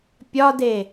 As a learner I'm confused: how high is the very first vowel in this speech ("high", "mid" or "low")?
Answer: low